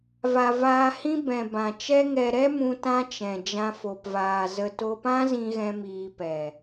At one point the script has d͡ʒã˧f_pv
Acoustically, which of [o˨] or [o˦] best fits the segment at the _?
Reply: o˨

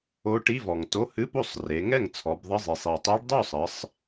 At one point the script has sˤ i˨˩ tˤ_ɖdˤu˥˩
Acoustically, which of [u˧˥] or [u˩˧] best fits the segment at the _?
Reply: u˧˥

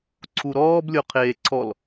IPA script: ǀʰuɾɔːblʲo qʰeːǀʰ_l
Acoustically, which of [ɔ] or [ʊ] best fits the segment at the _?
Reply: ɔ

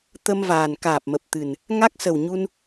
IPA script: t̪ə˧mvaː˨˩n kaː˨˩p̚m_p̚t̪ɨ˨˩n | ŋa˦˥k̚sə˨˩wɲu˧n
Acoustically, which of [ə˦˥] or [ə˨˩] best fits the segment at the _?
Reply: ə˨˩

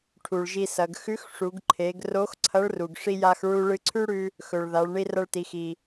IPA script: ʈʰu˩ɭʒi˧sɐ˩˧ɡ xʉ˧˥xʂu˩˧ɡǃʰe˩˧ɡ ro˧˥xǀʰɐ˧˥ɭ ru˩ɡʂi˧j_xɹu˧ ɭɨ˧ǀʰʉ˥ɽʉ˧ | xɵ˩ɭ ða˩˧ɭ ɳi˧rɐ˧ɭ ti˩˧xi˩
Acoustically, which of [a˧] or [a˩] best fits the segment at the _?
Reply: a˧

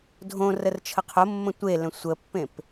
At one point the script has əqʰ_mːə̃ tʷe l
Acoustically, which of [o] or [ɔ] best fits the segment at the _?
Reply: o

